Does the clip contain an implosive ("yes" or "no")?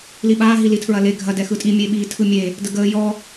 yes